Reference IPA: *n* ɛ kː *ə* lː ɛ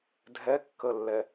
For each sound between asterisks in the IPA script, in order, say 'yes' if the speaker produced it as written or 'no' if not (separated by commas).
no, yes